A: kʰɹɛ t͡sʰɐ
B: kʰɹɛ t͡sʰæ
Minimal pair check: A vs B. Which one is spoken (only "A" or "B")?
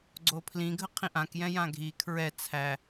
B